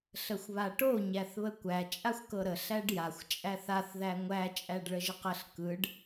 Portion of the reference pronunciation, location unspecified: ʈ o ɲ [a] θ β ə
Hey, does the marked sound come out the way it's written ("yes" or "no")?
no